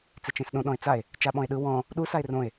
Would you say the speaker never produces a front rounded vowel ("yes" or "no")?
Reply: yes